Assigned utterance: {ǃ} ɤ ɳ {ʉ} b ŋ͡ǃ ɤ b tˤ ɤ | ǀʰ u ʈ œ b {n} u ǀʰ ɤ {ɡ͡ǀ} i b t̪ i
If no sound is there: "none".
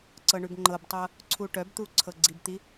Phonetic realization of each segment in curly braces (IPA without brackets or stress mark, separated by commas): ǀ, ʉ, t̪, ɡ͡ǀ